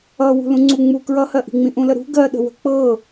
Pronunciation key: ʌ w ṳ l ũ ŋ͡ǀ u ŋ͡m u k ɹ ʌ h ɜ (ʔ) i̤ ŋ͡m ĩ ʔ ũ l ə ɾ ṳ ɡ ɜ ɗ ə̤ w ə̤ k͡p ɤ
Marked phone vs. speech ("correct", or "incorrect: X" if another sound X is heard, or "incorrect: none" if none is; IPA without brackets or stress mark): correct